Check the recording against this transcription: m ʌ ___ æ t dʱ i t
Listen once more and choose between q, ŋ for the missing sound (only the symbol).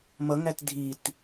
ŋ